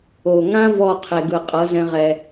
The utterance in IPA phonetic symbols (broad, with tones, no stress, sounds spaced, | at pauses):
o˨ ŋ ã˦ v ɔ˦˨ qʰ e˨ ɡ ɯ˨ qʼ ɤ˨˦ z ɛ̃˧ ʁ ɛ˧